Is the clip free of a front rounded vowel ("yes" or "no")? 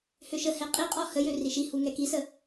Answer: no